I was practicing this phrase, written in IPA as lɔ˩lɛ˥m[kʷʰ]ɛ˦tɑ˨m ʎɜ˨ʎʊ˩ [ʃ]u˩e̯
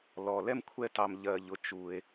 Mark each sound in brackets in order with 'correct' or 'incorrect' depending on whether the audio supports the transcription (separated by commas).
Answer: correct, incorrect